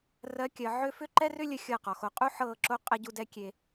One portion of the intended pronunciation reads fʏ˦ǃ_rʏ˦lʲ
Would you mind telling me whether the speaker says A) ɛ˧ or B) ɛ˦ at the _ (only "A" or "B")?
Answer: B